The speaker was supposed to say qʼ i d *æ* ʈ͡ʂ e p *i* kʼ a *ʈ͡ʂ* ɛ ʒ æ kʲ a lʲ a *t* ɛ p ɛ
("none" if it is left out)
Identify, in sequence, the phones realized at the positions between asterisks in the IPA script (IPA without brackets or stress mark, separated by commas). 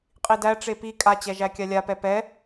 æ, i, t͡ɕ, p